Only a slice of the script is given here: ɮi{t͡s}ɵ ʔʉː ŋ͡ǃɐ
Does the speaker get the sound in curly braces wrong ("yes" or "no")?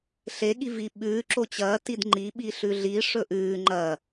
yes